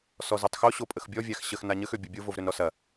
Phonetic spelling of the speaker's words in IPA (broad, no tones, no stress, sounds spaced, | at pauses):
s ɔ z u tˤ x o ɕ o pʼ ə x bʲ ɔ vʲ a x ɕ ə x n a ɲ ə x ø bʲ u bʲ o v o v ɾ ø n ɾ ɔ s ɐ